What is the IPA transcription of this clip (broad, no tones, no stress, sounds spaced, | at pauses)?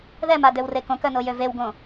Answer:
ð ɛ m a d ø w r e k õ k œ n o j ø v e w ɡ õ